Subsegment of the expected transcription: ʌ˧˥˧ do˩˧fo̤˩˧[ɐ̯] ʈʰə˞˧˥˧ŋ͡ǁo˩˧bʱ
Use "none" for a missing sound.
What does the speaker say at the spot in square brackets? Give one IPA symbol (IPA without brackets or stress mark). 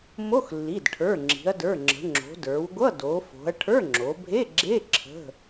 ɐ̯